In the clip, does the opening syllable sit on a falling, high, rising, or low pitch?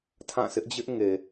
falling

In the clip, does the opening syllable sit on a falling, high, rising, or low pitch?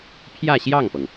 falling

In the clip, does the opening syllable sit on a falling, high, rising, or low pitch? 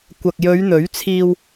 low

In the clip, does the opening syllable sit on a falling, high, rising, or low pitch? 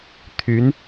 rising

